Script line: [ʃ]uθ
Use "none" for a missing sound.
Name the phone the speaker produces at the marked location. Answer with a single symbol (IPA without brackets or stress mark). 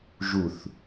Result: ʒ